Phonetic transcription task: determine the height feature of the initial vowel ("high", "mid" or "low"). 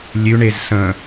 high